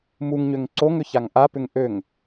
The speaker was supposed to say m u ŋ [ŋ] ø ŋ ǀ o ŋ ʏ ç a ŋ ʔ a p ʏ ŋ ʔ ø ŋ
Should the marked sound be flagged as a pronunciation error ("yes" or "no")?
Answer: yes